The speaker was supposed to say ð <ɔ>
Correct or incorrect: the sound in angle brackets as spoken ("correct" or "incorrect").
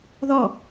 correct